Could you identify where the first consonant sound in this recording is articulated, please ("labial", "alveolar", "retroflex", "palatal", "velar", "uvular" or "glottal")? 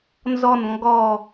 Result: alveolar